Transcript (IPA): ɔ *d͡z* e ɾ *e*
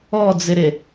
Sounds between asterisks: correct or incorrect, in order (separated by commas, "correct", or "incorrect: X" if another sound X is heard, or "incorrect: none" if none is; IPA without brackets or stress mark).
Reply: correct, correct